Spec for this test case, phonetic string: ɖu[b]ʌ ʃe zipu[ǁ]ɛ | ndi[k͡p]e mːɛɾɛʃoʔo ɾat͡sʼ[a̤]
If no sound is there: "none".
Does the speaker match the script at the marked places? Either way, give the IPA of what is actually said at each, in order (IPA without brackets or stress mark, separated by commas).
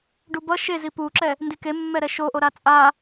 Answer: b, ǁ, k, a